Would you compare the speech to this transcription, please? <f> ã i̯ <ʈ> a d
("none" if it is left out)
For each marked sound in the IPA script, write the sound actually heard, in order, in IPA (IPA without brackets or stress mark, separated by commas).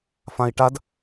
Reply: f, ʈ